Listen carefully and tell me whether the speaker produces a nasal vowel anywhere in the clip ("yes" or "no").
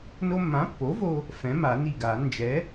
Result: yes